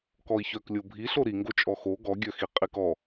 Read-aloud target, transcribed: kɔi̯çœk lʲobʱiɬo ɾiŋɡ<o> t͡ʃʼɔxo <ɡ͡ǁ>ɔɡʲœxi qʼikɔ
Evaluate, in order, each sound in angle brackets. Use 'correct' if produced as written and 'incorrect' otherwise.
correct, incorrect: ɡ

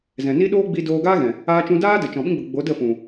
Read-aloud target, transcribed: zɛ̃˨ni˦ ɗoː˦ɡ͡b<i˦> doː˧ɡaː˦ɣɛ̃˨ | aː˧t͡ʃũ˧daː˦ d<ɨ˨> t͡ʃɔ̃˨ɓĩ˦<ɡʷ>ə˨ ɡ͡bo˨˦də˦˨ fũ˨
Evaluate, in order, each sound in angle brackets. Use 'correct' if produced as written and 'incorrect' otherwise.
incorrect: i˧, incorrect: ə˨, incorrect: ɡ͡b

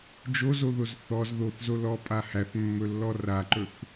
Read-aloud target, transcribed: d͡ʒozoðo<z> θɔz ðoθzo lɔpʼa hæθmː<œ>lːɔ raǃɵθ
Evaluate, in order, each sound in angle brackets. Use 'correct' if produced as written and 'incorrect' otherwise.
correct, incorrect: ɵ

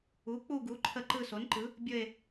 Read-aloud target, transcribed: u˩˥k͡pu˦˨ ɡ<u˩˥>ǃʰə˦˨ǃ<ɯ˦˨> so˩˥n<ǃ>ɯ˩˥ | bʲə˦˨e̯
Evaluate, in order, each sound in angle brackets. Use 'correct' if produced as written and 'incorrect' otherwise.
correct, correct, correct

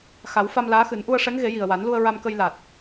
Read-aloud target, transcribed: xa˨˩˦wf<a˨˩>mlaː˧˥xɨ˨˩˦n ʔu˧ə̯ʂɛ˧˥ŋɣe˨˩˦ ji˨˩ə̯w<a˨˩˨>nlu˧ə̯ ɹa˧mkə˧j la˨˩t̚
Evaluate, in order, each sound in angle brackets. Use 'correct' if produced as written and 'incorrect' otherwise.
incorrect: a˧, incorrect: a˨˩˦

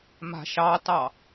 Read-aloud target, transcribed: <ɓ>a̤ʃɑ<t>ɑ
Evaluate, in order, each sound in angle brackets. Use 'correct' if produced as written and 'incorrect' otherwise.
incorrect: m, correct

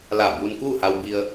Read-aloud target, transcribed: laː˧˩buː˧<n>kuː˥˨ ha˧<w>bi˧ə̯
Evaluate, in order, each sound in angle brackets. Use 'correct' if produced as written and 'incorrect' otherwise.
correct, correct

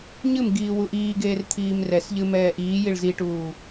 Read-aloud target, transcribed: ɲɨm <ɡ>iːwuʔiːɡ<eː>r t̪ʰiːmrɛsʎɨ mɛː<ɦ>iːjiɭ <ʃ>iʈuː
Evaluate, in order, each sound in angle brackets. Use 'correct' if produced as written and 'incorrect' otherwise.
correct, correct, incorrect: ʔ, incorrect: z

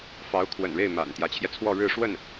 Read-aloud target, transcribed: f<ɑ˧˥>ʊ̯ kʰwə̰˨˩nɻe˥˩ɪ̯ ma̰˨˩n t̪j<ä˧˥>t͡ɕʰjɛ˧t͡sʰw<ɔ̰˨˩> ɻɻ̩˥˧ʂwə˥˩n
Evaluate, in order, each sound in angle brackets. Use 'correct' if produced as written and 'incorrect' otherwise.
correct, correct, incorrect: ɔ˥˧

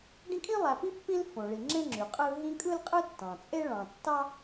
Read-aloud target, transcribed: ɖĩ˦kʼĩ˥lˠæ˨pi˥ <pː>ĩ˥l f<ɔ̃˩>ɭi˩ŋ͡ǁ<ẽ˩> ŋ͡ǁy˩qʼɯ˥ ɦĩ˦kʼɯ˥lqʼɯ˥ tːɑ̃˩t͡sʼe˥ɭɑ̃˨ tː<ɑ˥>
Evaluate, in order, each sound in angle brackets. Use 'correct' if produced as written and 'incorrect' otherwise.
correct, incorrect: õ˩, incorrect: ẽ˥, correct

